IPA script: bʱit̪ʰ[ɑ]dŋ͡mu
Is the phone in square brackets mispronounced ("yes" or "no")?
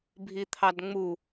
no